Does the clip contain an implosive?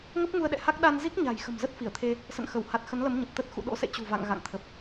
yes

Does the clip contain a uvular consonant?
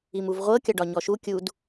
yes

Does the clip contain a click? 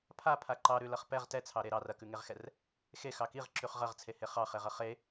yes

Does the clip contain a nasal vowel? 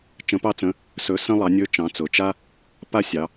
yes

